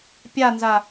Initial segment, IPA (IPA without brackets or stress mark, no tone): pʲ